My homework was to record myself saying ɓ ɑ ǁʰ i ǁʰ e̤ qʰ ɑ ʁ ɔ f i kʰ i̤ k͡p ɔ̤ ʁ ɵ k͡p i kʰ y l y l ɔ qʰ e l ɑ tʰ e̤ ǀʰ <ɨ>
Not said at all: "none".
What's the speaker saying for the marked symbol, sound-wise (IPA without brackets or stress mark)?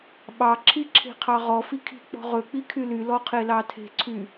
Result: y